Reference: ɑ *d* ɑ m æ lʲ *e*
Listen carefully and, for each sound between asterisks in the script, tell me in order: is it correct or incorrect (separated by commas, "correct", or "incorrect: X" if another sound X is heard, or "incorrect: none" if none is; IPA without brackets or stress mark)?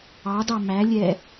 correct, incorrect: ɛ